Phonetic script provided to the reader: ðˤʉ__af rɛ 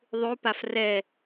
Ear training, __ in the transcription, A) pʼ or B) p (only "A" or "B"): B